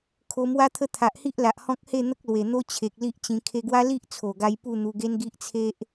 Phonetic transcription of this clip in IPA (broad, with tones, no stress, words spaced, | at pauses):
kʰo˧mwa˦t̪ʰə˦ t̪ʰa˨ʔhi˦ʔla˨ʔ hɔ̃˦k̚he˥˧ n̪ə˦k̚lwe˨˩n̪o˦ t͡ɕʰe˨k̚li˦ʔt͡ɕĩ˧ kʰe˧ɡwa˦li˦ʔ t͡sʰo˨˩ɡa˧j pu˥˧n̪u˧ɡe˦n ɡi˦ʔt͡sʰe˦ʔ